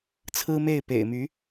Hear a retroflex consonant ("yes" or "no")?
no